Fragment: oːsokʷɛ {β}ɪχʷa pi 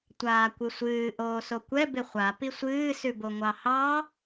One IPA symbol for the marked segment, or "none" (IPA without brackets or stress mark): b